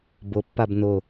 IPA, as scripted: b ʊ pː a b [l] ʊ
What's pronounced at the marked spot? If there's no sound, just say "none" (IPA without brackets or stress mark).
n